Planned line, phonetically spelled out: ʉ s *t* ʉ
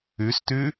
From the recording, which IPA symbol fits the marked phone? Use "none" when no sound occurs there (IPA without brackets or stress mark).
t